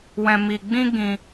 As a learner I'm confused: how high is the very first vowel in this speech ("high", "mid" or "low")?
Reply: mid